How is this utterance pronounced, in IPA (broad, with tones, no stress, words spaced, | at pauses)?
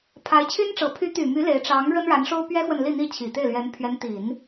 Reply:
pʰa˧˥ɪ̯t͡ɕʰy˥nʈ͡ʂɤ˧˥ pʰy˧˥t̪y˨˩ my˧˥ le˧˥ɪ̯ ʈ͡ʂɑ˧˥ŋ ɻə˥nɻa˧˥nʂo˥ʊ̯ pɥɛ˥xwə˨n li˥˧n̪i˥˩ t͡ɕʰi˨˩t̪e˥˩ɪ̯lɥɛ˧˥n pʰɥɛ˧˥nt̪i˨˩˦n